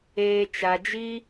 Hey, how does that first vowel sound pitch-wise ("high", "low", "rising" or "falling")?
low